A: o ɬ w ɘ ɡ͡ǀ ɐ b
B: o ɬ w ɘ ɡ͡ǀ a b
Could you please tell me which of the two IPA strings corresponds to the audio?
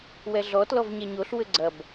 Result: A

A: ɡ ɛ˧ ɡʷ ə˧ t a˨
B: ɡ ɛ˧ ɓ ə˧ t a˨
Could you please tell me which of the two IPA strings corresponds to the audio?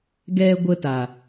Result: A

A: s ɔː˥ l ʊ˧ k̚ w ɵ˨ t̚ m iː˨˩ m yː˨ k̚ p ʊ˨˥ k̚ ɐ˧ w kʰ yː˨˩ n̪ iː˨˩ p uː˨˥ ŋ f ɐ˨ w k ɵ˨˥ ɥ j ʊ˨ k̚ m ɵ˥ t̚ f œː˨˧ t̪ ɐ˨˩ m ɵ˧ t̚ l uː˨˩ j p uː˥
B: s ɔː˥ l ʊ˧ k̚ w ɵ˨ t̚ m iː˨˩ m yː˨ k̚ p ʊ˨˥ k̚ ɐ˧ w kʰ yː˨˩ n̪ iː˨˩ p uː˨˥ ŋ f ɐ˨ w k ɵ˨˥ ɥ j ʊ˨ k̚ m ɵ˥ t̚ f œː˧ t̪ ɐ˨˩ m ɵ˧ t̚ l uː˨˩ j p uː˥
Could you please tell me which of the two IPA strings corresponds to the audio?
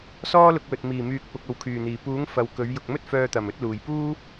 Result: B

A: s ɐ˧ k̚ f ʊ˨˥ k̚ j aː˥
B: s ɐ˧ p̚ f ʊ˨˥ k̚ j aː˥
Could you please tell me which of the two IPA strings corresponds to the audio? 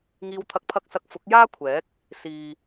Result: A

